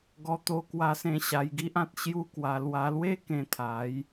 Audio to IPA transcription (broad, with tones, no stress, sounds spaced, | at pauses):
ɡ ɔ˧ t̪ o˧ k w a˧ s ẽ˧ ɕ a˧ j ɡ i˦ ʔ ã˦ t̚ ɕ j u˦ k w a˧ l w a˧ l w e˦ k ẽ˧ t̪ʰ a˨˦ j